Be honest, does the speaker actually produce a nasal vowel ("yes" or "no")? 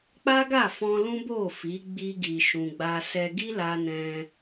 yes